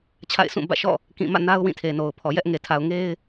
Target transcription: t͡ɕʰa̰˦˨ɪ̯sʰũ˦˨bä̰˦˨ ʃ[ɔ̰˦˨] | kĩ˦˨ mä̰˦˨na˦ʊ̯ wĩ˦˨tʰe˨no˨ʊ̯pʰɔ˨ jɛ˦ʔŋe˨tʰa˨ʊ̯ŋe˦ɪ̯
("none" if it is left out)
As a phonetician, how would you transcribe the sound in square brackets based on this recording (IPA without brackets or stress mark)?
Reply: ɔ̰˦˨